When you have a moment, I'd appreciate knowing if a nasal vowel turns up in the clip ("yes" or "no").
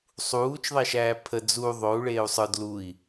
no